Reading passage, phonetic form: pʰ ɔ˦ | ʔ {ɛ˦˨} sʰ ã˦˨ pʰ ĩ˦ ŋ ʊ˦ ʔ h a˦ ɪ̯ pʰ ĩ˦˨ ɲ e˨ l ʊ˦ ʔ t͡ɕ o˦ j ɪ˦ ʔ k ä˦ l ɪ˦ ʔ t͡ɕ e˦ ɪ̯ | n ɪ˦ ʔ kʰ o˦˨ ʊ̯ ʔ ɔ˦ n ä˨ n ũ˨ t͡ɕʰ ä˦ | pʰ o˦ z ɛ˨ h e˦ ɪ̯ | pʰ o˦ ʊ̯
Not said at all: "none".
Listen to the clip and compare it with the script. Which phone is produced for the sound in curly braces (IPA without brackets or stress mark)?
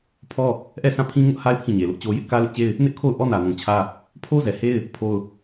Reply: ɛ˦˨